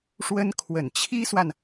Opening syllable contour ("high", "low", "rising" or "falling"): high